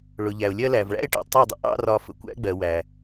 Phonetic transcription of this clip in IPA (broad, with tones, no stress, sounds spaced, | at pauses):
ɭ ʊ˨ ʎ æ˨ ʊ̯ lʲ ɜ˦ l æ˨ v ɭ æ̰˦ ɪ̯ ʈ ɛ̰˨ tˤ ɜ˦˨ dˤ ə̰˦ ʔ ɑ̰˦ r ɒ˧ f ə̰˨ kʷ æ̰˦ ɡ͡b ɜ˨ w æ˨